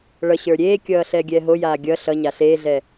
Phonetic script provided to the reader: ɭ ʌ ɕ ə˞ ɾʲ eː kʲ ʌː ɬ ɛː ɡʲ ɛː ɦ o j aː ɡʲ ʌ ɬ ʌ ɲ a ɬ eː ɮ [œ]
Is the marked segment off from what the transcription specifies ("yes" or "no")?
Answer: yes